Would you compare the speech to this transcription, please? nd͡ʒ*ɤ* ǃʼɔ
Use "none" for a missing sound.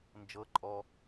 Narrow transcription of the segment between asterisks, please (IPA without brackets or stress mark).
ɤ